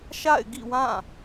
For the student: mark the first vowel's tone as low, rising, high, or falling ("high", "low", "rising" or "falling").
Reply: falling